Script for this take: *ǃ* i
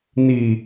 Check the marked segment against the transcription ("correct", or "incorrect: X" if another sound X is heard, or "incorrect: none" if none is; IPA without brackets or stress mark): incorrect: n